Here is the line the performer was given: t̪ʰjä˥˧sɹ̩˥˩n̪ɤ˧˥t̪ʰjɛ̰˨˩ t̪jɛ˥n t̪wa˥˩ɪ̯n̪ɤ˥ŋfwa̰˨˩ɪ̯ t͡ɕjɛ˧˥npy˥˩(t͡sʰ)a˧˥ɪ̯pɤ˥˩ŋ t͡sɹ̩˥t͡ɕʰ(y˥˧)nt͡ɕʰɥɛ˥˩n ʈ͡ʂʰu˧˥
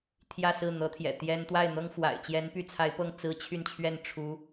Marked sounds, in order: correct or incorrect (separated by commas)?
correct, correct